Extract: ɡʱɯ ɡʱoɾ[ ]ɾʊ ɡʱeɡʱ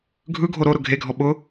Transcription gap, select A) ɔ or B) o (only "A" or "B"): B